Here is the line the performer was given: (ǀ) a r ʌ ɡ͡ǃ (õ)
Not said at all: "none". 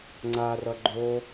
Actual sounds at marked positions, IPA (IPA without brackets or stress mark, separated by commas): ŋ͡ǀ, o